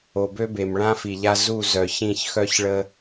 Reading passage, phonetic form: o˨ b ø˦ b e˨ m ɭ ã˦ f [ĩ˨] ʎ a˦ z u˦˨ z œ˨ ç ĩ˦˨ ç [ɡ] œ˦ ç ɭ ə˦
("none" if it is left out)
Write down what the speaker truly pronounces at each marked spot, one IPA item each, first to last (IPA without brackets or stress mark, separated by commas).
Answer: i˨, x